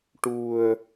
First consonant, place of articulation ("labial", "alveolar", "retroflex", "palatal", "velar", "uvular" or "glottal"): retroflex